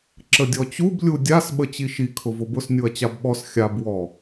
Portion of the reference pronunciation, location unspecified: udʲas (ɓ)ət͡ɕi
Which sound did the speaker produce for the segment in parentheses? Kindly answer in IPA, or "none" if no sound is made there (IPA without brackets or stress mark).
ɓ